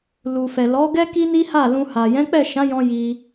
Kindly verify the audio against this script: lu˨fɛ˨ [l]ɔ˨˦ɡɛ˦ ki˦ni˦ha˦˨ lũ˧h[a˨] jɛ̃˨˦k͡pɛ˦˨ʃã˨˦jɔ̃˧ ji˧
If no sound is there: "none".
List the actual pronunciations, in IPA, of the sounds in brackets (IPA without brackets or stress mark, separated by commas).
l, a˨